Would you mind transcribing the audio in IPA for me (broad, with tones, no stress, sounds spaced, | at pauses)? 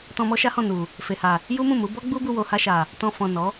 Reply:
t ɔ̃˧ m ɔ˦ ʃ a˦ h ɔ̃˦˨ n u˨ | f e˨ h a˨ | j u˦ m ũ˦˨ m u˨˦ b ɔ˦ ɡ͡b u˦ b u˧ w o˨ h a˧ ʃ a˨ | t ɔ̃˧ f ɔ̃˨ n ɔ˨˦